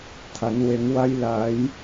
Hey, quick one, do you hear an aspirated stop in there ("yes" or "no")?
yes